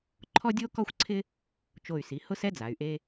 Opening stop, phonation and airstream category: click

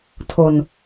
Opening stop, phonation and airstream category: aspirated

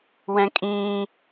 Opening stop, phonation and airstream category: ejective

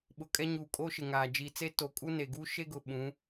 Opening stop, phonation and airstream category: implosive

